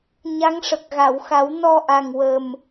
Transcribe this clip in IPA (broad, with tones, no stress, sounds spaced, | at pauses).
ɲ a˧˥ ŋ ʂ ə˨˩ k̚ ɣ a˨˩˨ w x a˨˩˦ w n ɔ˧ ʔ a˨˩ ŋ w ə˨˩ m